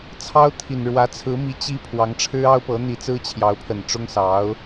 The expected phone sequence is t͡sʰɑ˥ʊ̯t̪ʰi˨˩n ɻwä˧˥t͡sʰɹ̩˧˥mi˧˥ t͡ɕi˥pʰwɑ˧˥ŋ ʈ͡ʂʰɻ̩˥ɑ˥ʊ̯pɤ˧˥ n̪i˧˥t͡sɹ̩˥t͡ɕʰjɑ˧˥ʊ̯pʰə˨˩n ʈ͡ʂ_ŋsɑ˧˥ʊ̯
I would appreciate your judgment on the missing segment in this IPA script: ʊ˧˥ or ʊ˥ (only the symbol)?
ʊ˥